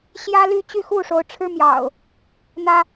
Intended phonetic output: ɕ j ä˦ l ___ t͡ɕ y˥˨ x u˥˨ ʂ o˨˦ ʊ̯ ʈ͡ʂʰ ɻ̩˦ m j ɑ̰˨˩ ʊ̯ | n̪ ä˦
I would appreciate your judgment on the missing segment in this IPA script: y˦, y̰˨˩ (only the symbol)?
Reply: y˦